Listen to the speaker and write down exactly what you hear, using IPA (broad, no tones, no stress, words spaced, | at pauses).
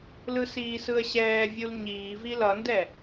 lɯsiːsɯə̯ɕɛː vʲulɲiːvi lʌndɛ